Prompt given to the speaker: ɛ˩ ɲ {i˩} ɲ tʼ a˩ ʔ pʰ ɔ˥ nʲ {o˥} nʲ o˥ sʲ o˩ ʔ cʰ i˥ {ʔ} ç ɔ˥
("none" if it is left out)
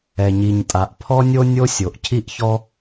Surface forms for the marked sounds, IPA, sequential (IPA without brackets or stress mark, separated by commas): i˩, o˥, ʔ